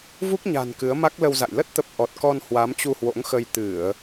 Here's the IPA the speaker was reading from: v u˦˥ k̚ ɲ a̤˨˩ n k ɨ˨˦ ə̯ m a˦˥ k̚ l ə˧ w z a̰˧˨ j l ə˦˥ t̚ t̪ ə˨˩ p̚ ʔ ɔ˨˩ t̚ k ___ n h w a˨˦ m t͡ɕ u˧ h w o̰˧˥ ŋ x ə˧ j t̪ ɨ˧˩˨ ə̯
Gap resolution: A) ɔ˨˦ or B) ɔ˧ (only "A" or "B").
B